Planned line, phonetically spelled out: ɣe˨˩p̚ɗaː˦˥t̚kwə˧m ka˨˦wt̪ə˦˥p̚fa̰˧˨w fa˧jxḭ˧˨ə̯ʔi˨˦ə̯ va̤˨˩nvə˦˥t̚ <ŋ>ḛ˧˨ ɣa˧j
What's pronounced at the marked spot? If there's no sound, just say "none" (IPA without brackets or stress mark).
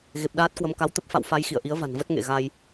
ŋ